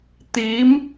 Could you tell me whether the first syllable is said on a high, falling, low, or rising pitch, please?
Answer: rising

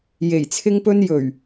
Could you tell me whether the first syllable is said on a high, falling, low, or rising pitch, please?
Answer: low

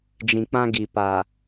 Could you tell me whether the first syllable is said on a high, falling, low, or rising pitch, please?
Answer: low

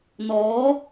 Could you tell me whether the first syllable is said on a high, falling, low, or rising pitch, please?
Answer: rising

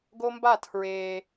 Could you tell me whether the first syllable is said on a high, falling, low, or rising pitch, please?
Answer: high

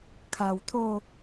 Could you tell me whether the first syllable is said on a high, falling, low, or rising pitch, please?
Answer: low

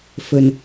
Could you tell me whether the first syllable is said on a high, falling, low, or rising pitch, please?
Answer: low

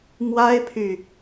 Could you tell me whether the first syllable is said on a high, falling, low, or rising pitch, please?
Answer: high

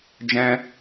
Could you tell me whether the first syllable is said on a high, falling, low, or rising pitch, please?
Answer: high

